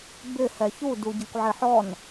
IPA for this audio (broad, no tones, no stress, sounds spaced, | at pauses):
b ɪ h ɛ ç u d u ɟ ɪ kʷ ʕ ɪ ħ ɔ n